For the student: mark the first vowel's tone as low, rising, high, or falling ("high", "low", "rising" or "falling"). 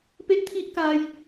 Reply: high